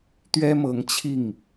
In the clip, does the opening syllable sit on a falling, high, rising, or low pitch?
high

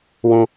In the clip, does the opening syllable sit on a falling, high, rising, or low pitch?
low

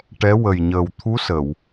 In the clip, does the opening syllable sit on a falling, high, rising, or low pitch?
rising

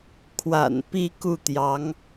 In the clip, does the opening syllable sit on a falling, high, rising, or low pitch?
low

